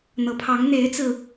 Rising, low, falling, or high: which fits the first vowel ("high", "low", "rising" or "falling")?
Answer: low